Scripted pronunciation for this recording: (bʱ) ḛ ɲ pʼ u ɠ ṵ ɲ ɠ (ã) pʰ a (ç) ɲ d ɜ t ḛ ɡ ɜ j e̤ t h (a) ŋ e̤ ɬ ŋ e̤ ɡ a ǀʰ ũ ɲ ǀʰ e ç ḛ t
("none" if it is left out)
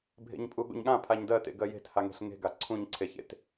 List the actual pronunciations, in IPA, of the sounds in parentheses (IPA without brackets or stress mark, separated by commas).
bʱ, ã, none, a